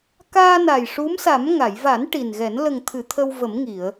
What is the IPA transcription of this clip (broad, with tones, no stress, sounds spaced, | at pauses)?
k aː˧ n a˨˩ j ʂ u˧˥ m s a˨˩˦ m ŋ a˨˩˨ j v a˨˩˦ n ʈ i˨˩ n ɣ ɛ˨˩˦ n l ə˨˩ ŋ t̪ʰ ɨ˨˩˨ t̪ʰ ə˧ w v ə˨˩˦ m ŋ i˨˩˨ ə̯